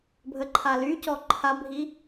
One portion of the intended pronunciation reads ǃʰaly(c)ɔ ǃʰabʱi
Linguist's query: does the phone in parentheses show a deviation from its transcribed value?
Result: no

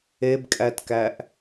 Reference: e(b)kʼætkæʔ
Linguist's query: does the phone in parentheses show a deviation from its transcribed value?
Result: no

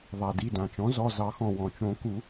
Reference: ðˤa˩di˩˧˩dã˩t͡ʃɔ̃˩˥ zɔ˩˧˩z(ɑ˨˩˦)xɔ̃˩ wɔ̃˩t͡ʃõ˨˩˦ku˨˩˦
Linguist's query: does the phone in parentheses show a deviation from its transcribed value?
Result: no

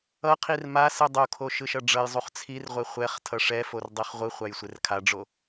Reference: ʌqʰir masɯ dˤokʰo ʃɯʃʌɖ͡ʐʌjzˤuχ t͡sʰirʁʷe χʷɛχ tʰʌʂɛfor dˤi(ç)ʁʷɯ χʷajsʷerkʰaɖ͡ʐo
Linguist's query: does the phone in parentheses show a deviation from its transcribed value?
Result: yes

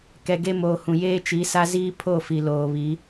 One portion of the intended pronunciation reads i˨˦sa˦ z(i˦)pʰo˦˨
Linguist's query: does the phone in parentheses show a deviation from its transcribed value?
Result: yes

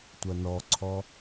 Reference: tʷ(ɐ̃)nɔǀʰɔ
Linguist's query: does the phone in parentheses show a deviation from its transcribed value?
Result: yes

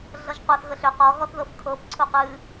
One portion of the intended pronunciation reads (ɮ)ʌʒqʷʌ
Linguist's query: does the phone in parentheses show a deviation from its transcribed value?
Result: no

